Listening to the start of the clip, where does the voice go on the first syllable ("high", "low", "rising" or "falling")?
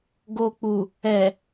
low